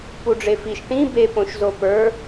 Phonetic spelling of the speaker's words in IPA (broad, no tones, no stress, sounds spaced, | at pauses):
p u ɖ͡ʐ e f i ʃ ʈ ĩ b e p õ ʃ z o p ə˞